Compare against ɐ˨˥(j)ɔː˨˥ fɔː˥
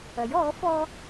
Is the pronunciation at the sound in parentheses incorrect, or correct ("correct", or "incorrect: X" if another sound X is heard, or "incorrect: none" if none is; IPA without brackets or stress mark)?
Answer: correct